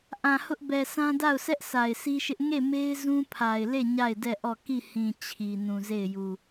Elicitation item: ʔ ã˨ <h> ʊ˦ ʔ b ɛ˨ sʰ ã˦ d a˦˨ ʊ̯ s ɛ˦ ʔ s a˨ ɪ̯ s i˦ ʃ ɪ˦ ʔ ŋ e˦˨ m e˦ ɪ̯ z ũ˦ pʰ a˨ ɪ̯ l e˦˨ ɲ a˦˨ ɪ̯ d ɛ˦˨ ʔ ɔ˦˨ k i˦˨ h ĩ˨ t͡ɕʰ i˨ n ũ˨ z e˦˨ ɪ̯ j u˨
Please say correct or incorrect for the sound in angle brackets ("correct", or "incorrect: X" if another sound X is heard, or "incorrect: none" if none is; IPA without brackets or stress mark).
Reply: correct